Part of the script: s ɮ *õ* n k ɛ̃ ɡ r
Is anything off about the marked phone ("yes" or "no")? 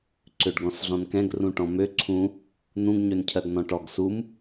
yes